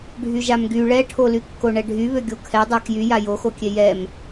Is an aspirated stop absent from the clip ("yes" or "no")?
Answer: no